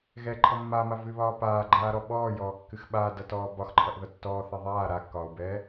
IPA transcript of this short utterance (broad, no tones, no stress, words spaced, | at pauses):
ɣɛǃʰʌ mːama vɨβɒː paːɡ͡ǃaːɾɔ ɓɔːjɔːkːɨx ɓaːdʌtɔː bɒxǃʰʌʔðʌ tːɔːθɛ ðˤaː ɾakːɒːu̯bɛː